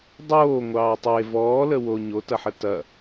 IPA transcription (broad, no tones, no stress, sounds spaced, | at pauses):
dˤ oː ŋʷ ɑː tˤ e v ɔː l ə w o ɲ o t ɐ ħ ə t ɐ